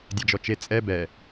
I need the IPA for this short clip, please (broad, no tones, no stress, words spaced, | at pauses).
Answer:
dʲɛd͡ʒɔt͡ʃe t͡sʼɛ bɛ